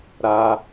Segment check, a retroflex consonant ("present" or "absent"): absent